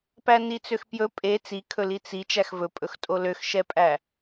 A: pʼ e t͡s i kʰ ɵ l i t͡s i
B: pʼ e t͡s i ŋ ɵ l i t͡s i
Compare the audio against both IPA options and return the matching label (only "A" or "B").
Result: A